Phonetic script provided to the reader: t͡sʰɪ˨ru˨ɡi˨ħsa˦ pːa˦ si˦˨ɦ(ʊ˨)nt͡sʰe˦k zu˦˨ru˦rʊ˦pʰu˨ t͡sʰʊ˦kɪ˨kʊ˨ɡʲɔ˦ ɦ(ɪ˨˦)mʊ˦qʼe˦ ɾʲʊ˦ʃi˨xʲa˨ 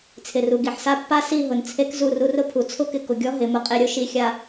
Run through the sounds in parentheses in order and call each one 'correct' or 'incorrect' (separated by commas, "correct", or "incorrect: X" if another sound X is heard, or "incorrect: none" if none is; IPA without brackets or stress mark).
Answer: correct, correct